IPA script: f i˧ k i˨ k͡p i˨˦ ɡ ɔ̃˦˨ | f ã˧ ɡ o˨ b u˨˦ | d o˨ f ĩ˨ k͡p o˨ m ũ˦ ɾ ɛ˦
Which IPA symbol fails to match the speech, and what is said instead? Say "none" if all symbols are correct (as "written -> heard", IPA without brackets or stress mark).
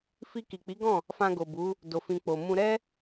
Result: ũ˦ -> ũ˧